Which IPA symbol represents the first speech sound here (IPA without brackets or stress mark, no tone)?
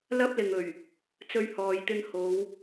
l